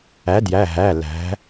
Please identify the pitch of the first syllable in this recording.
rising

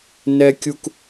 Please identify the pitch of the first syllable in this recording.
high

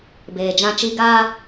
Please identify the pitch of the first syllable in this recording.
low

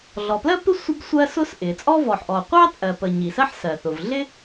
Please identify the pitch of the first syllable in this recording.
low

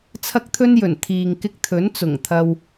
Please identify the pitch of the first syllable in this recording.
high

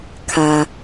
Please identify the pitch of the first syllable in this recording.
low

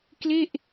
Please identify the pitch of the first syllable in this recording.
falling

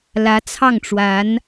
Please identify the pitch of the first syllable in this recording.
rising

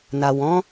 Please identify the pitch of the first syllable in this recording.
low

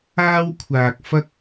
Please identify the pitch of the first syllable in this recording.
high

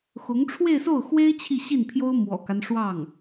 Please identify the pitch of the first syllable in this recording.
rising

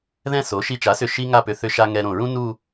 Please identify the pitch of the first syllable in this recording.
falling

